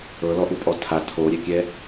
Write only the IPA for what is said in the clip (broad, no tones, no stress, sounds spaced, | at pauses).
ɤ l ɔ ʔ u pʼ ɔ tʰ a tʰ o ɾʲ ɛ kʲ ɛ